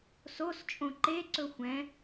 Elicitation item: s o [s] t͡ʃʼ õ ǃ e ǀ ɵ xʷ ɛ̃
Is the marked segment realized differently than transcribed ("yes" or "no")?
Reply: no